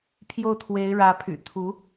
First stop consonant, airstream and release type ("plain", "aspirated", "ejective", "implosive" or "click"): aspirated